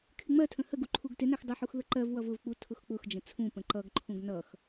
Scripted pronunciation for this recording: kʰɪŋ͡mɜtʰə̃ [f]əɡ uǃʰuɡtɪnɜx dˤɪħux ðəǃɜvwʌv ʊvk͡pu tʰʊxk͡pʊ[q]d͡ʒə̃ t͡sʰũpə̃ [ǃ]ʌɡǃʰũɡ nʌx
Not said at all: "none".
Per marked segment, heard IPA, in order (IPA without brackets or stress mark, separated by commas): h, x, ǃ